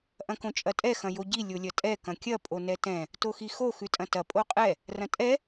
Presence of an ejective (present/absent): present